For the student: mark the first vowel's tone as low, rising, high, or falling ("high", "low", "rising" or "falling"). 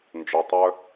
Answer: low